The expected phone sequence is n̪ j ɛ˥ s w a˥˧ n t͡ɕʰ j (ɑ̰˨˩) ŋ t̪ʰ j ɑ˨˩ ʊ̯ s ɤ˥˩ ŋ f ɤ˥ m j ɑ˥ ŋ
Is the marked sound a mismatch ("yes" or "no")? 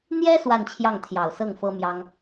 yes